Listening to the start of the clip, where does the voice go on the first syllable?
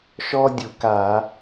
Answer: high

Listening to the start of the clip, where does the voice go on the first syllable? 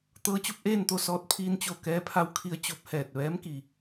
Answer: rising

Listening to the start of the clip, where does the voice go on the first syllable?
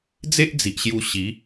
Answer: high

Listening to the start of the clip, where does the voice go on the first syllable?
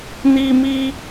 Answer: high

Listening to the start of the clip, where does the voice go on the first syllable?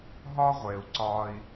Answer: high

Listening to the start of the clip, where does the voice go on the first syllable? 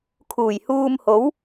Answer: low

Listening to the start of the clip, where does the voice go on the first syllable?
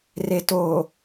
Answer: low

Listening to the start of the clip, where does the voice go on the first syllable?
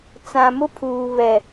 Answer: low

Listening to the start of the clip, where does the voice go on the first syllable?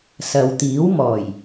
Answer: low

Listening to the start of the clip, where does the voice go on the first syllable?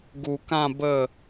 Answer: low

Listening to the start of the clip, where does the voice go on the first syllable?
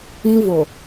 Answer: high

